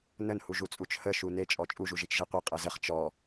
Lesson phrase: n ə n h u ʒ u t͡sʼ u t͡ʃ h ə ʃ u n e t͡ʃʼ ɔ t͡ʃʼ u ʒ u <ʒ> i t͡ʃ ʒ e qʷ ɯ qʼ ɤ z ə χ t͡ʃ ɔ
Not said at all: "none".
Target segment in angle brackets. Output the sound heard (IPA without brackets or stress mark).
ʒ